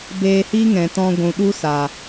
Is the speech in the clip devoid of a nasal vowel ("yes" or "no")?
no